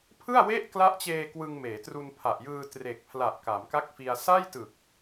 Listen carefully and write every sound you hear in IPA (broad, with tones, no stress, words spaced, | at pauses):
pʰɯ˥˩a̯we˥˩ʔ kla˦˥ʔt͡ɕeː˧ kwɯ˧ŋmeː˩˦tru˧npʰa˨˩ʔ jɯː˧ tre˨˩k̚pʰla˨˩ʔ ka˩˦mka˥˩k̚fi˧a̯ sa˥˩jtɯ˨˩k̚